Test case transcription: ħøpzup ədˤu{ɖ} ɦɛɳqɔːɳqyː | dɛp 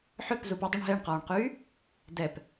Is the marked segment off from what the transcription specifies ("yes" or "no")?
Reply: yes